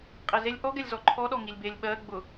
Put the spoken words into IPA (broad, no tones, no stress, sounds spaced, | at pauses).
qʼ e z e lʲ ʔ ɔ ɡ ɛ lʲ z ɔ ǃʰ ɔ ɗ ɔ ŋ i lʲ b e lʲ ɓ ɜ ɡ͡b ʊ